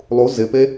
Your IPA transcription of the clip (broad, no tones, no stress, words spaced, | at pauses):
lˠu zɪpe